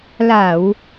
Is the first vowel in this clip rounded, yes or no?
no